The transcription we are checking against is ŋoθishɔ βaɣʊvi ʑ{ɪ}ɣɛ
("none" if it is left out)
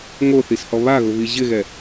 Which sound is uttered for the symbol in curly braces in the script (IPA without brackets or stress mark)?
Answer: ɪ